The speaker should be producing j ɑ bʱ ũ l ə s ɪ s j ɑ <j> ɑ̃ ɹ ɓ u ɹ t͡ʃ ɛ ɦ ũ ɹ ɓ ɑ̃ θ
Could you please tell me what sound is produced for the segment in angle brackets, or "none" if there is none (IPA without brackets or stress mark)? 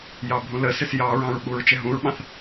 ɹ